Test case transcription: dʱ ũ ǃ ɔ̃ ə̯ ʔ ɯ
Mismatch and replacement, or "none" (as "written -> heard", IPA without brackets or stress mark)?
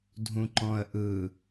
none